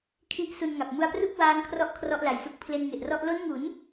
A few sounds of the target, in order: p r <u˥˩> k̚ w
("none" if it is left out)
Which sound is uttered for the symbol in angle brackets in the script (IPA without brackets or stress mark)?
u˥˩